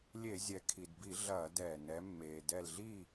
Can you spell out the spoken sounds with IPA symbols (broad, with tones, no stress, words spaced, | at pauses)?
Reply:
lʲe˧˩˧zʲɛ˩˧kʰi˩dbi˧˩˧ ɮɐː˧˩˧dɛː˩ nɛ˩˧mːeː˩ dɛ˧˩lɮi˥˨